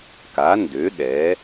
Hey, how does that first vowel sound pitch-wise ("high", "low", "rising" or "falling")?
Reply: rising